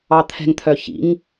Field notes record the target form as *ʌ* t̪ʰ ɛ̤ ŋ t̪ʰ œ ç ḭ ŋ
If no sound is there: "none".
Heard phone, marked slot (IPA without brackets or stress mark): ɑ